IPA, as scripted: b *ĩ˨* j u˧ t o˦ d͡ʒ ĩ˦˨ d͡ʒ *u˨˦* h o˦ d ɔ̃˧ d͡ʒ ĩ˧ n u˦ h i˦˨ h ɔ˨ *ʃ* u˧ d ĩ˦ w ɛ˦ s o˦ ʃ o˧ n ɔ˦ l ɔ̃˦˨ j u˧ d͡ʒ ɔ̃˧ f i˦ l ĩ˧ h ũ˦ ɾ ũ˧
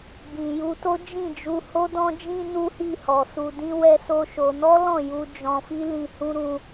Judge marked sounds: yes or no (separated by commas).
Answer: yes, no, no